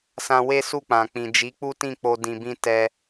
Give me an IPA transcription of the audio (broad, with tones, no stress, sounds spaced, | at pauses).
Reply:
s ã˧ w e˦ s u˦˨ k͡p ã˨ k͡p ĩ˨ d͡ʒ i˨˦ k͡p u˦ t ĩ˦˨ k͡p o˧ d ĩ˧ b ĩ˦ t ɛ˧